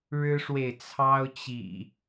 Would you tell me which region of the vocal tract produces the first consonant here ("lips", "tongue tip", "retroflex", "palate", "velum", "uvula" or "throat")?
retroflex